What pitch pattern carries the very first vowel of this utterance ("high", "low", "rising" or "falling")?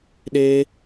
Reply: high